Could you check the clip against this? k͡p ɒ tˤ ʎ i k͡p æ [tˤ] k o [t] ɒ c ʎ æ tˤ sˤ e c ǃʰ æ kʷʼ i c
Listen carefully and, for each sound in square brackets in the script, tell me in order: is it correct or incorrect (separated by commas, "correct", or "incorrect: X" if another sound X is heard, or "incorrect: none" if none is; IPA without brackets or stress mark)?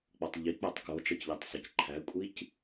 correct, incorrect: t͡ʃ